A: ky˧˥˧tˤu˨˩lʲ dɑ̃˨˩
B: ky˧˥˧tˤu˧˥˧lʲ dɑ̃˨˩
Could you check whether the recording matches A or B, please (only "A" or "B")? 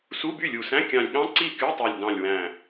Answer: A